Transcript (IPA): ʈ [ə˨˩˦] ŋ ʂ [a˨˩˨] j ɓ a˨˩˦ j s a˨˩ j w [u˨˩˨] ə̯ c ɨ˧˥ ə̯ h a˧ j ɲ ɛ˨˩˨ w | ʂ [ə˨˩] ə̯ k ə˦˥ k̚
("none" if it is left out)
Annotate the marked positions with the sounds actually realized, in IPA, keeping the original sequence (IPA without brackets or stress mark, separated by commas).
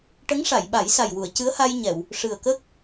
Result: ə˧˥, a˨˩˨, u˨˩˨, ɨ˨˩